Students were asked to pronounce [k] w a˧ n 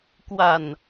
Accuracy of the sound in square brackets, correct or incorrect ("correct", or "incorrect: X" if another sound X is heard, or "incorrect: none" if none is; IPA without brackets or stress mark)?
correct